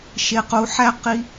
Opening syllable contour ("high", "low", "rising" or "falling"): high